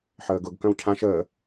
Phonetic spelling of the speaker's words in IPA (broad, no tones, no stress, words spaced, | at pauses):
ħəːɡʊɡ kœ̃wcʰãʃ əː